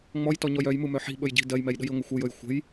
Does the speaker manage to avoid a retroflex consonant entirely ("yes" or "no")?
yes